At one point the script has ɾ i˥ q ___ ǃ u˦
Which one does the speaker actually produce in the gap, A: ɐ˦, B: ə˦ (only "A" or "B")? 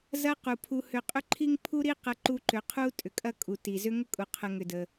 A